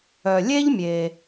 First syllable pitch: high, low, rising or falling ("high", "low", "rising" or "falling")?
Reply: low